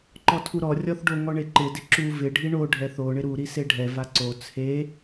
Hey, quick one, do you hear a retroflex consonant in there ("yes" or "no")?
yes